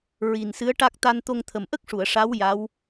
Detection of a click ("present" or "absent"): absent